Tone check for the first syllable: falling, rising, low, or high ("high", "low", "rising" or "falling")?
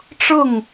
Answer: falling